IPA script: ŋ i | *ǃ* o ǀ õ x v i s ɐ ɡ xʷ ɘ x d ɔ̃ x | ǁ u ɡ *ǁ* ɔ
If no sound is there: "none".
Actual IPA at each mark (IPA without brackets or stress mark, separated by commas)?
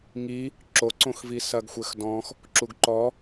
ǁ, ǃ